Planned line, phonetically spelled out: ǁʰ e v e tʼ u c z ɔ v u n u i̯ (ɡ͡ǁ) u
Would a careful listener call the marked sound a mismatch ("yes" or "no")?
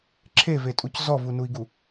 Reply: yes